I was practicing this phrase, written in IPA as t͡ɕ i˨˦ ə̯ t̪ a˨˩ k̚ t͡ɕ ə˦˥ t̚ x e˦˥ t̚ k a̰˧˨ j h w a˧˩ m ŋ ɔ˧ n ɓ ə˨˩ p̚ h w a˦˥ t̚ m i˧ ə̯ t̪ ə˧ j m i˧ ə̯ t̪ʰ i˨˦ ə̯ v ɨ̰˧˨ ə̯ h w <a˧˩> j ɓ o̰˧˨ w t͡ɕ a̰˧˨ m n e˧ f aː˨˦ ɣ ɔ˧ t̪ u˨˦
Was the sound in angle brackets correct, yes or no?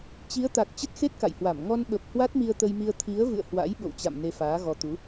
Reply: no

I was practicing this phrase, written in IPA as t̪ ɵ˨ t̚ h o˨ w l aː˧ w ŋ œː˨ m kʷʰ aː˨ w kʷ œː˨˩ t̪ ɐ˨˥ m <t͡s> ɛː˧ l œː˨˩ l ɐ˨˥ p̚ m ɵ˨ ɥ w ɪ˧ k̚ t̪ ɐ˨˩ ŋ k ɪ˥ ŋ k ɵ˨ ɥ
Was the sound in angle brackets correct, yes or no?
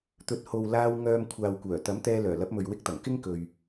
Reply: no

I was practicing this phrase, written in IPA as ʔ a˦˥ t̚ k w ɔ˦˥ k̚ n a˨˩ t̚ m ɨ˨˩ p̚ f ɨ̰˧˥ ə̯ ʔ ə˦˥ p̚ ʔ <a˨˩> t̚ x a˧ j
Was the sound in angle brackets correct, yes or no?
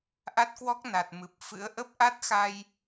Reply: no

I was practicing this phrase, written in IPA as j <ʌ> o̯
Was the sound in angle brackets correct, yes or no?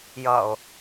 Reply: yes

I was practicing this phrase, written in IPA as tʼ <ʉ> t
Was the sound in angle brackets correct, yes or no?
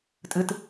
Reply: no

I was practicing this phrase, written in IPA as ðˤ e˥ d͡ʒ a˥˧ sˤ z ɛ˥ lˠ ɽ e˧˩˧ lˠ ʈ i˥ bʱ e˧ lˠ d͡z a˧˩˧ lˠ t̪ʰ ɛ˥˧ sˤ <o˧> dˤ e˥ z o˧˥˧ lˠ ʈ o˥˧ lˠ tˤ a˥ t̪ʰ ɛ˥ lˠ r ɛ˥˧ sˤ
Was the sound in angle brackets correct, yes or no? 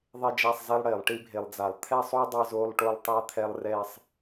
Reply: no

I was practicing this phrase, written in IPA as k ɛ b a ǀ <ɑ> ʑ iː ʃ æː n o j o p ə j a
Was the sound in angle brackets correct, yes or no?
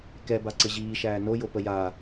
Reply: no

